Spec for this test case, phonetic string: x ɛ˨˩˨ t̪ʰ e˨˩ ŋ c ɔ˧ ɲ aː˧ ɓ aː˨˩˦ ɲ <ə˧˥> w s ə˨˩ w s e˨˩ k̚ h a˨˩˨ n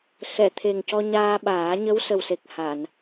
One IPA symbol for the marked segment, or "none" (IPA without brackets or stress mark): ə˧˥